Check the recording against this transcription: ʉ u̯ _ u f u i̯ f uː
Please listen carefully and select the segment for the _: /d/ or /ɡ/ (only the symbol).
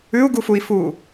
ɡ